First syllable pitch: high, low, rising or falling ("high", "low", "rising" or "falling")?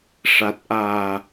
low